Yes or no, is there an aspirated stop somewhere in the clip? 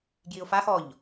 no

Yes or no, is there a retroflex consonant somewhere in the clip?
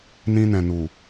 no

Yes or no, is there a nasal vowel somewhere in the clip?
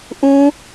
yes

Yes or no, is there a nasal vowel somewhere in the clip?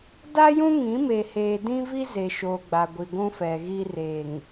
yes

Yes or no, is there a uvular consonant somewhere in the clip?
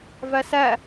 no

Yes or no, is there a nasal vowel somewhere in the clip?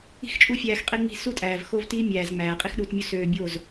no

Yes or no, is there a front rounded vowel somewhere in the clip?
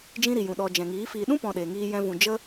no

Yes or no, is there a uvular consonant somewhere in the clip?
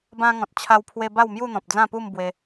no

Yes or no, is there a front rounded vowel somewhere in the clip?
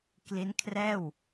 no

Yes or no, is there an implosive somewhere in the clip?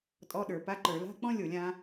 yes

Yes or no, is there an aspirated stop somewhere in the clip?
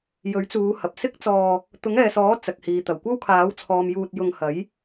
yes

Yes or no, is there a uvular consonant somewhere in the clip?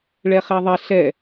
yes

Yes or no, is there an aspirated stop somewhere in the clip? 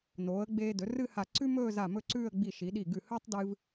no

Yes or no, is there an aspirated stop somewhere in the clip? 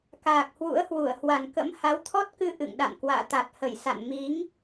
yes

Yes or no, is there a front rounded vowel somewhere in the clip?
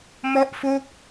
no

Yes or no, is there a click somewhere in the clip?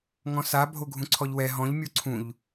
yes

